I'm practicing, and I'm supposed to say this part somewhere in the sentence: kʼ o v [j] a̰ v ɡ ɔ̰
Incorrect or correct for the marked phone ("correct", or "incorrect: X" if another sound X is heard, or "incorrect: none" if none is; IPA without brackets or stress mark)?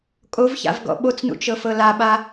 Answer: incorrect: ç